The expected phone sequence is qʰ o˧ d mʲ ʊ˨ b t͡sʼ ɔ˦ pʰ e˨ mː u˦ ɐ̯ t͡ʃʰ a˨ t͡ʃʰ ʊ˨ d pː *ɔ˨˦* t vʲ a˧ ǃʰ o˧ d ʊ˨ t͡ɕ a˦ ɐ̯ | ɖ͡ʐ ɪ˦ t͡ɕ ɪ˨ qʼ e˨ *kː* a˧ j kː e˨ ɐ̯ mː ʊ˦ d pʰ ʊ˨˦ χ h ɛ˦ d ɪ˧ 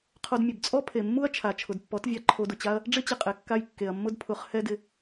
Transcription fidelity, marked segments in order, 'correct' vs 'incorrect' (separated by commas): correct, correct